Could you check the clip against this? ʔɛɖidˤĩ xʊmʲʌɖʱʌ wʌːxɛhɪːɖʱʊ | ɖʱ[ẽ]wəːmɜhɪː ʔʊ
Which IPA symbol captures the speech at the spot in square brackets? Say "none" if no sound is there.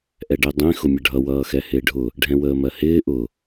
ɛ̃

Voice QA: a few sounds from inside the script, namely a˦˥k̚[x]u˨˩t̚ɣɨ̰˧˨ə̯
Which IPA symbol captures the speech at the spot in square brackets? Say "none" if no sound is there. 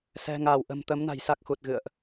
x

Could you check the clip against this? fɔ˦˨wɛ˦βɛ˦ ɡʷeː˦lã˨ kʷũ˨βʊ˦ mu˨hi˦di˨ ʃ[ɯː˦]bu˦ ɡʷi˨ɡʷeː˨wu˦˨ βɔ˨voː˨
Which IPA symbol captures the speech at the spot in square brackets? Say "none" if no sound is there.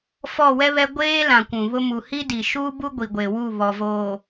uː˦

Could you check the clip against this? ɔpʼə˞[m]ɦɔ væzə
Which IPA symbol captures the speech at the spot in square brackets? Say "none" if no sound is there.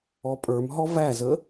m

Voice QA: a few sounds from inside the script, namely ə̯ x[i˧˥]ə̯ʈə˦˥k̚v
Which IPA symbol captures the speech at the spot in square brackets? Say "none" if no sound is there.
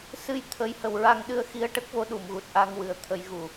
i˧˥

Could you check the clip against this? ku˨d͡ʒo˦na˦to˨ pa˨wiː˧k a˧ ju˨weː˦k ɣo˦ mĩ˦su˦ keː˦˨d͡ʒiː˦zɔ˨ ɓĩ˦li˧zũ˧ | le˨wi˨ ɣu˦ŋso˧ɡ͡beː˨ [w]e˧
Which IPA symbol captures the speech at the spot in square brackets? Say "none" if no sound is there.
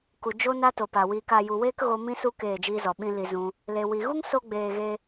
ɣ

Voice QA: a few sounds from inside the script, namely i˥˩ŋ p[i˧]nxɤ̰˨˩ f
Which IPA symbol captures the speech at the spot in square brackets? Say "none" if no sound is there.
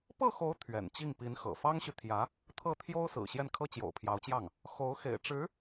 i˧˥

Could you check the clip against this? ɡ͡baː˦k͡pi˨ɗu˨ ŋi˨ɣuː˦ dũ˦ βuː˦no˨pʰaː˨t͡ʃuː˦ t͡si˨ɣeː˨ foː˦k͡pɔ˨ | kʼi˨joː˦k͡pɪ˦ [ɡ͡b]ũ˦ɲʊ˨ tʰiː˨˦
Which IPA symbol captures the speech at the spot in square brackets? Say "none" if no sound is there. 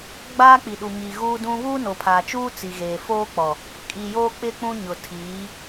k͡p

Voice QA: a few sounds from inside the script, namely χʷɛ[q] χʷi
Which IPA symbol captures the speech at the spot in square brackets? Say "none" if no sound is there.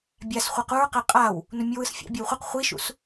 q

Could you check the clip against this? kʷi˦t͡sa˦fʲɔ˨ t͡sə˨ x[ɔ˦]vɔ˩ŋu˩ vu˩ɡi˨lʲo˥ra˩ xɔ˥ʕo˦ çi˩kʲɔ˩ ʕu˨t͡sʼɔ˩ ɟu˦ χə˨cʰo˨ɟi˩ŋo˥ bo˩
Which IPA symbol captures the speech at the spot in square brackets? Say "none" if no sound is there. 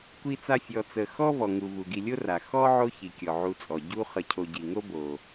ɔ˥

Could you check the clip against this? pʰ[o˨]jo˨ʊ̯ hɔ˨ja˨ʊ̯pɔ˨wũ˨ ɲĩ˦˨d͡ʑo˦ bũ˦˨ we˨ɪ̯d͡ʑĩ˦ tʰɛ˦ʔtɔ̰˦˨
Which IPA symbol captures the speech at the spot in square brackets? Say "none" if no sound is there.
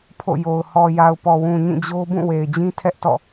o̰˦˨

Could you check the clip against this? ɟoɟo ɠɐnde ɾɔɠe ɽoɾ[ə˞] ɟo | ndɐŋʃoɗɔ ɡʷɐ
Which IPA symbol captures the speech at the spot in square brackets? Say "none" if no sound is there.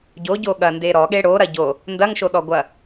ɐ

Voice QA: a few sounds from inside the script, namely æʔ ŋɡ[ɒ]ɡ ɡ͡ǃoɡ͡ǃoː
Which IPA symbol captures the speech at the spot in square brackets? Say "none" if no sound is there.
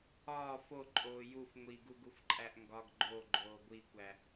ɒ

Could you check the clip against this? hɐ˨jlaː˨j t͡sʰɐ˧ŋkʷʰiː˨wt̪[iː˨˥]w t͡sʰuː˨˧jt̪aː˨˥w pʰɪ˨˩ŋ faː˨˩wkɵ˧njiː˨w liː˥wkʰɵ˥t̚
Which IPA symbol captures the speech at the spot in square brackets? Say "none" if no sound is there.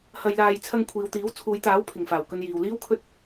iː˨˥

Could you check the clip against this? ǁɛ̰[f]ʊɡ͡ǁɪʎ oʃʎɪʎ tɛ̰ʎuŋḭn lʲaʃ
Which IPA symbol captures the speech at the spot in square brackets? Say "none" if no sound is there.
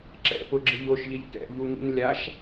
p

